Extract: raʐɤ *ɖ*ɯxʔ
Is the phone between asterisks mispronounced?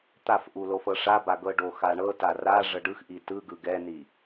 no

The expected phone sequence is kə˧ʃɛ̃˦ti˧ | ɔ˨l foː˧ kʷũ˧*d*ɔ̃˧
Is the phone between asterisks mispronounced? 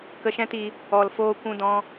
no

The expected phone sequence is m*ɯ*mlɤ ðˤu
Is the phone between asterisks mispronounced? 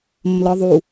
yes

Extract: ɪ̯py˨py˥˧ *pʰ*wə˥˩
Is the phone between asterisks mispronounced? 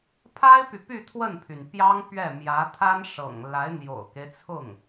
yes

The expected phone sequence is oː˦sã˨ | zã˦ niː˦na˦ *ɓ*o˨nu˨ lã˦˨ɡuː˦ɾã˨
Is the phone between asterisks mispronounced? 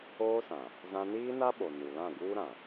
no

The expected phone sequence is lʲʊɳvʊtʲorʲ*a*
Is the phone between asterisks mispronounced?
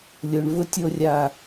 no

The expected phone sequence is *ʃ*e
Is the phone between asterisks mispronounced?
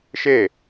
no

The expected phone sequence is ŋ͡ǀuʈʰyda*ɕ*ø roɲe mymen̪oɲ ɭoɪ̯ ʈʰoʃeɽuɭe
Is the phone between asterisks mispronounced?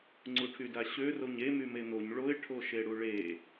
no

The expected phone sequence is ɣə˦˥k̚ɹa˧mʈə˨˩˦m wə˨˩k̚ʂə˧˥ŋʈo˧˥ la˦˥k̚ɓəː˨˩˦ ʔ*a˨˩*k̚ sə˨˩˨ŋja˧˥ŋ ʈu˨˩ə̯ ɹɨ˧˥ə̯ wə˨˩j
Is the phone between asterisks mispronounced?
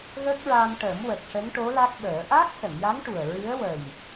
yes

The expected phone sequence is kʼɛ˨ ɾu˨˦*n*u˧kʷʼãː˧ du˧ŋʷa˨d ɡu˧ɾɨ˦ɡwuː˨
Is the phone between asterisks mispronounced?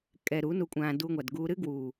no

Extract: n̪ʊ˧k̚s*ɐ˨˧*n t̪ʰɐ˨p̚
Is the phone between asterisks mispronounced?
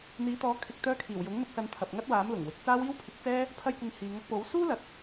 yes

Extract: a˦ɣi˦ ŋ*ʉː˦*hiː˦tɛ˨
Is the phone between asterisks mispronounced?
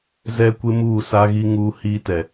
yes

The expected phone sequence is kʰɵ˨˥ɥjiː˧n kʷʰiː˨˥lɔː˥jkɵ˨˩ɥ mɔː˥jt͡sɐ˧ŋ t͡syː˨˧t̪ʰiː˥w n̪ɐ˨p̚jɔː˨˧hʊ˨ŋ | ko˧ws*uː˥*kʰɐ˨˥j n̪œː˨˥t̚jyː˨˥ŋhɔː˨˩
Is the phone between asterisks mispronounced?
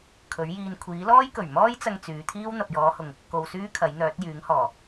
yes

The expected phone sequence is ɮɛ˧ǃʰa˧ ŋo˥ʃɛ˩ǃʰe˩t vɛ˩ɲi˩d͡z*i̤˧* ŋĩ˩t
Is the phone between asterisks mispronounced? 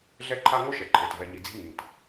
no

